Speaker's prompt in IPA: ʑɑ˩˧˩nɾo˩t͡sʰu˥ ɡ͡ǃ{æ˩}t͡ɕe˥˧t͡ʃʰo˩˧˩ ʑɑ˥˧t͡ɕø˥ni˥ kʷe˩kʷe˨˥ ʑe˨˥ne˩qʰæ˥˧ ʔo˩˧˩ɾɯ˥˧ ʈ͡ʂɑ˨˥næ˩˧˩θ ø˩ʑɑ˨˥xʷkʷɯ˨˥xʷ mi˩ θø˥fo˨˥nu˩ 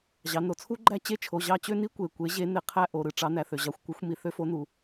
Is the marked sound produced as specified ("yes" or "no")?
no